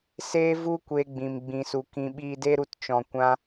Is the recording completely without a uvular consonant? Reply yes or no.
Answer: yes